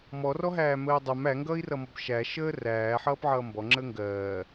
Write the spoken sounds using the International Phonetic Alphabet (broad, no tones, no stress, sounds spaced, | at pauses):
m ɔ r ɔ ɦ æː m əː dˤ ɐ m æ ŋ ɡ ʌː i̯ r ʌ m ɔ b ʃ æ ʃ əː r æː ħ ʌː p ʕ ʌː m b ɔ ŋ͡ǁ əː ŋ ɡ ɜː